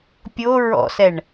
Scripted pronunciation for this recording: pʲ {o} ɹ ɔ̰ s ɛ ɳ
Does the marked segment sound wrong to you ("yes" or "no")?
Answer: no